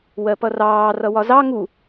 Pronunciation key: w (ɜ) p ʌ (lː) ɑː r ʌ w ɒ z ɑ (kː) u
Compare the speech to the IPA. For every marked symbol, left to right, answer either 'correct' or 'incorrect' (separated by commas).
correct, incorrect, incorrect